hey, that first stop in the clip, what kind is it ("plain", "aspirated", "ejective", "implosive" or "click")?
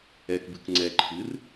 plain